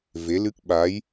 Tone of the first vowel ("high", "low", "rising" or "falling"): rising